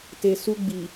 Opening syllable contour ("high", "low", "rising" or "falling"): low